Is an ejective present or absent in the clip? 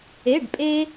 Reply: present